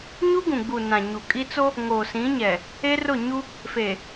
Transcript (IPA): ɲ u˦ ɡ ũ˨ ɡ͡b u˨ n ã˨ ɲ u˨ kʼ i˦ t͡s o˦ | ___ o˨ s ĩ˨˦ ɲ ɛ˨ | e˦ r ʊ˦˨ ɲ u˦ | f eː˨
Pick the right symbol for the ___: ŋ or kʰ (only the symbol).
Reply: ŋ